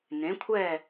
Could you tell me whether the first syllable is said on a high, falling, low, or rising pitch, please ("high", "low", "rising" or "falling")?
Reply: rising